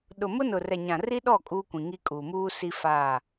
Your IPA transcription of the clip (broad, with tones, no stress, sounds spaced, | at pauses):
ɗ ʊ˨ m ʊ˦ n ʊ˨ r ɛ˨ ɲ ã˨ r i˦ ɗ ɔ˦˨ kʼ uː˦ kʷ ĩ˨ ŋ i˦ kʼ uː˨ m uː˦ s i˦ f a˦˨